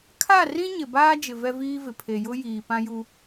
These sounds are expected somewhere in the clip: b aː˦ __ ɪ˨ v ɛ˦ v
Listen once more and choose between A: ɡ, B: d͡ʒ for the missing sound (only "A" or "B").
B